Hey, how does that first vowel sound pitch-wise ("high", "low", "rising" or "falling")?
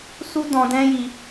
high